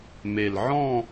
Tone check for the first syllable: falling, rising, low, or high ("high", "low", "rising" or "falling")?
low